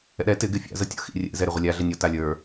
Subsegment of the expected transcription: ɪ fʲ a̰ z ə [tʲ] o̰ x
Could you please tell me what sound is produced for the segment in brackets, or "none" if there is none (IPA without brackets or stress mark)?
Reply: tʲ